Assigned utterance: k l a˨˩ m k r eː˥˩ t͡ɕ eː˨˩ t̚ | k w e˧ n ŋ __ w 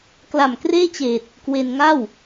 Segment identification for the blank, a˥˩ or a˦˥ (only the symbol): a˥˩